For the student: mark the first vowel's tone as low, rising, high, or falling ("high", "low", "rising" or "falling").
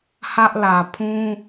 high